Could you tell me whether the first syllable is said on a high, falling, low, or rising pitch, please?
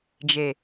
low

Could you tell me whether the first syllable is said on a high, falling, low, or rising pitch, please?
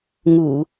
low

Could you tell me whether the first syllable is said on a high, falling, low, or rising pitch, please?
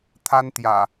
high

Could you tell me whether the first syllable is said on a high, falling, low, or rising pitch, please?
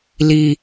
low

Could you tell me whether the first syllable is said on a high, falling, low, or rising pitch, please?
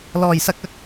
low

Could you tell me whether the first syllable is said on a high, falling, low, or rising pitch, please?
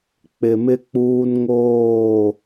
low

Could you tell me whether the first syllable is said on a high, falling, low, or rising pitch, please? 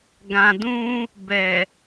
low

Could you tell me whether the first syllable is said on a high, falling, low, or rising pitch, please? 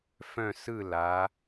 falling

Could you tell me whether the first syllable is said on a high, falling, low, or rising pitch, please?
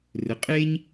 rising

